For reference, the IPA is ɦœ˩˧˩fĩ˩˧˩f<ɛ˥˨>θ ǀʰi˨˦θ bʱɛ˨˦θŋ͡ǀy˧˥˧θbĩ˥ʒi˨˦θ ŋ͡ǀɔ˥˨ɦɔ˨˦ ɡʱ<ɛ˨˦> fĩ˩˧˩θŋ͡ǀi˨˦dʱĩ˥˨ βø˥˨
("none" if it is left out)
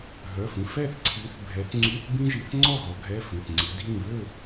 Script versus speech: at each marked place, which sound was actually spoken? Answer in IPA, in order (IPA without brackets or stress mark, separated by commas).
ɛ˥˨, ɛ˧˥˧